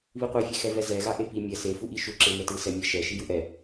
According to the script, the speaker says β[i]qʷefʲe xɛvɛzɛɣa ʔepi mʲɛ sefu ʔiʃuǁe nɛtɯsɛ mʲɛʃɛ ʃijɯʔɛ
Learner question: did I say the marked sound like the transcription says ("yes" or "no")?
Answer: yes